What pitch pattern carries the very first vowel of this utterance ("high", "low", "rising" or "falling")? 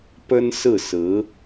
high